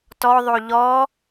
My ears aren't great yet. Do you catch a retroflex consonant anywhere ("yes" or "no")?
no